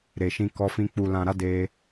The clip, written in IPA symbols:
ɾe˨ʃĩ˧kɔ˧fĩ˧ k͡pu˨lã˨ɾa˨˦ de˧

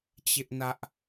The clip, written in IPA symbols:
t͡ɕɪ˦ʔnä˦ʔ

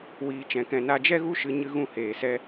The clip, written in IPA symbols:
wiː˧t͡ʃɛ̃˧kɛ̃˧ na˧d͡ʒɛ˦ɣu˦ʃɨ˧ ɲɨ˦ɣũ˦heː˧sɛ˦

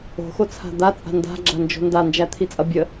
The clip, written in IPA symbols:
o̤xot͡sʰa̤ d̪at͡sʼa̤ nda̤ɡ͡ǁand͡ʒo̤ ndand͡ʒæt̪ʰit͡sʼʌ bʲə

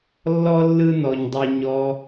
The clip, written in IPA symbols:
lːɔ˦ lːɯ˦nɔ˨ɲdˤi˨ ɲɔ˧

